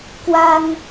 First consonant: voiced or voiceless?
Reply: voiceless